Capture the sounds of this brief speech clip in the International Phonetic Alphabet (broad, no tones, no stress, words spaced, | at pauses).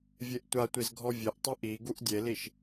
vʲeʔtʷatʷiz ɡʱɔvʲeʔtˤu ʔi ɡuʔdʲeliʃ